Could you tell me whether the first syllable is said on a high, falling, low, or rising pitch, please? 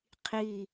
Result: falling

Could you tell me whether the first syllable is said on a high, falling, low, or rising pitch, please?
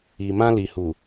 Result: low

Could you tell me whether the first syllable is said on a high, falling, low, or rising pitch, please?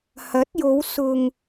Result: rising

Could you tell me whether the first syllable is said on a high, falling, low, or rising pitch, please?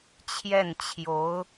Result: falling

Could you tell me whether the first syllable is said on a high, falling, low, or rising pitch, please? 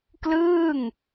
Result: falling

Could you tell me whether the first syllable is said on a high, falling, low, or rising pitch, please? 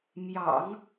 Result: low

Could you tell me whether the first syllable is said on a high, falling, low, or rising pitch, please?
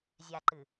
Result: low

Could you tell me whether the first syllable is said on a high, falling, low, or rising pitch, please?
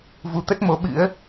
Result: rising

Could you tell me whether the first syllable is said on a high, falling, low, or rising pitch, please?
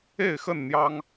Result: falling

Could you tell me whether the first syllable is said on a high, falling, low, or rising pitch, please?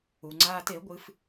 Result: low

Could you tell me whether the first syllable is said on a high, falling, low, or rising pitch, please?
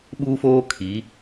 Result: high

